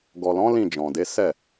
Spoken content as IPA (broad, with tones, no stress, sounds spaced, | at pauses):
ɡ ɔ˨ l ɔ̃˨˦ l ĩ˦˨ d͡ʒ ɔ̃˨ d e˨˦ s ɛ˦˨